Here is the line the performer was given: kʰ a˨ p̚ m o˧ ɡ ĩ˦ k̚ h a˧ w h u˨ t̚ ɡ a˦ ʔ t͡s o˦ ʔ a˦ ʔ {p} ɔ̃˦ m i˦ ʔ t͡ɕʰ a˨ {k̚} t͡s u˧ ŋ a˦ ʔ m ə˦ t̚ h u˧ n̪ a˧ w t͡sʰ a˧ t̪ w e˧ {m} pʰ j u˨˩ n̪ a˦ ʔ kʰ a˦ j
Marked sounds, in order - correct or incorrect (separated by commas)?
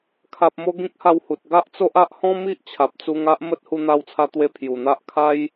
incorrect, incorrect, incorrect